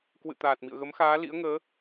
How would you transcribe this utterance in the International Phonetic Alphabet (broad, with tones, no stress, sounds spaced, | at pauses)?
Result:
k w ɨ̰˧˨ t̪ aː˨˩ t̚ m ḭ˧˨ ə̯ ɣ ə˨˦ m x aː˨˦ l ḭ˧˥ ə̯ ŋ əː˨˦